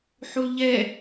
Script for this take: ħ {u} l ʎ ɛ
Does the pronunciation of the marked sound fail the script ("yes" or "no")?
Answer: no